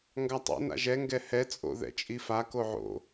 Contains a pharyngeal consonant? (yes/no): yes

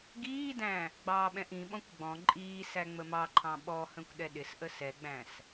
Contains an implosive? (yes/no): yes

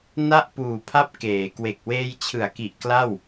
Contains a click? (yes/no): no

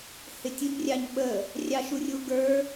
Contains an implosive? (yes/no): yes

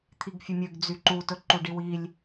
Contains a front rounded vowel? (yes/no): yes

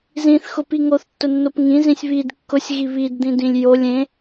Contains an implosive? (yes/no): no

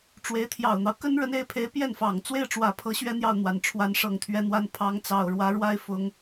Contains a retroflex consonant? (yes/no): yes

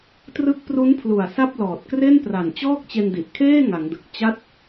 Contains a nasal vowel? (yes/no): no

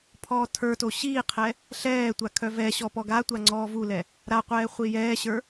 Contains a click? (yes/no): yes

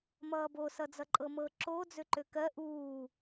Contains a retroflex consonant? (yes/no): no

